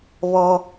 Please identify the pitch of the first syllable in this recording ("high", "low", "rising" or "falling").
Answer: high